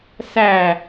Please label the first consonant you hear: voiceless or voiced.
voiceless